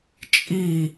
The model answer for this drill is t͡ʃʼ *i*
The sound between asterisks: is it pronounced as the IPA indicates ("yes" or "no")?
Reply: yes